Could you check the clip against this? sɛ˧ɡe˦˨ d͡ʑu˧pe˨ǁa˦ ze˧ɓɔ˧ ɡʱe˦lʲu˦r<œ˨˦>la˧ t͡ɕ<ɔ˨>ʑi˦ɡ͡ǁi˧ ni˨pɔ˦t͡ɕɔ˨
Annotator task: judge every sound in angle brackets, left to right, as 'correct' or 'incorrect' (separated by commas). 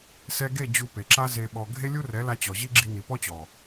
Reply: incorrect, correct